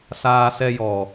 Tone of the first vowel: high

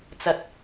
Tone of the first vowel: rising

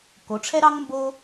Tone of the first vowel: rising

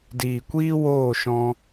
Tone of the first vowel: low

